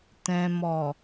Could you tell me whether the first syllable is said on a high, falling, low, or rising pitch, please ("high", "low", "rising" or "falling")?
low